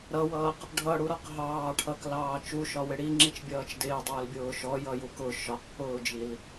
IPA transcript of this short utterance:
ɾ ʌ w ʌː q | ɖʱ ʌ ɽ u ɾ ɒ q ɦ ɑː ʈʰ ʌ k l ɑː t͡ʃ u ʃ ɒ w ɪ ɽ i ŋ͡ǁ i t͡ʃ bʲ ʌː t͡ʃ d ɪː dˤ ʊː l bʲ ʊː ʃ ɔ j ʌ j u k ʊ ʃ ɒ q p ʊː d͡ʒ i l

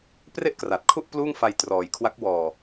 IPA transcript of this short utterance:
p r e˥˩ ʔ k r a˨˩ t̚ kʰ u˥˩ ʔ p l uː˥˩ ŋ f a˧ j t r ɔː˨˩ j kʰ w a˦˥ k̚ w ɔː˨˩

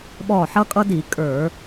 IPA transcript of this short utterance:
ɓ ɔ˧˩ ħ ʌ˦ kʼ ʌ˦ d i˧˩˧ kʼ ə˞˧˩˧

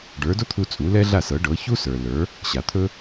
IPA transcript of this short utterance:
ɖ ə˞˩˥ d o˥ t̪ʰ u˧ t͡sʼ u˩˥ l ɛ˥ ɮ a˥˩ s ɤ˩˥ ɖ ɤ˩˥ ç u˥ s ə˞˩ l ə˞˩˥ | ɕ a˩ t̪ʰ ɵ˥

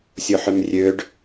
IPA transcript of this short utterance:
sʲ o ħ ø m rʲ ø ɖ

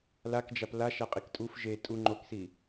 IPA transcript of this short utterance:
l a k d͡ʒ a p l a ʃ a qʼ i k tʼ u f ʒ e tʼ u ŋ͡ǃ o k s i

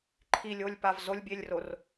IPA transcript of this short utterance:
ǃʰ i lʲ o lʲ p a v z o lʲ bʲ e lʲ r o r

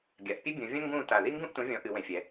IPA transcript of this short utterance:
ɡʲ a˩˧ ʔ pʲ ɨ˥ bʲ ũ˩˧ vʲ ɐ̃˥ ŋ ɡ ũː˦˨ t a˨˩ ð i˥ ŋ ɡ ũ˦˨ ʔ t ũ˩˧ vʲ ɔ̃˩˧ ʔ ɨ˩˧ w ẽ˩˧ fʲ ɛ˩˧

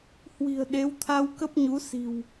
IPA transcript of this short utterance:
h w i̤˨˩ ə̯ ɗ e˨˦ w t̪ʰ a˧ w k ə˦˥ p̚ ɲ u˨˦ s i̤˨˩ w

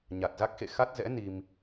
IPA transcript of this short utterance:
ɲ a˨˩ t̚ z a˦˥ k̚ x ḛ˧˨ x a˦˥ t̚ z ɛ̰˧˥ n i˧ m

